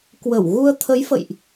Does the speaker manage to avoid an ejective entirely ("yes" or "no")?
yes